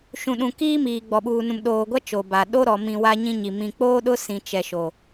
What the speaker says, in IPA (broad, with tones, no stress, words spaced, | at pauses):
ʃũ˨ɗũ˨kiː˦ miː˨ɡ͡bɔ˨ɓuː˨ nũ˨mɗoː˨ɡʷa˦ t͡ʃo˨ba˨ ɗo˦ɾɔ˨mĩ˨ wa˦ɲĩ˦ɲi˨ mĩ˨k͡poː˦ɗʊ˦ sĩ˨ t͡ʃɛ˨ʃo˨